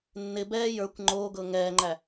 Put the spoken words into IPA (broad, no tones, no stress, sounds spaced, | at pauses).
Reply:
nː ɪ b ɛː j ə˞ kʷ ŋ͡ǃ oː ɡ ɤ ŋ ɛː ŋ͡ǃ æ